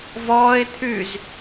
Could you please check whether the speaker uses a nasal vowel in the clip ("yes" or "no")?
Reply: no